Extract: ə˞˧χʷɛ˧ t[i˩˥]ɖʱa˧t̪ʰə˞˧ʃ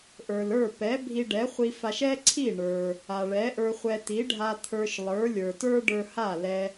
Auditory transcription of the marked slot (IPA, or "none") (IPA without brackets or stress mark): i˩˥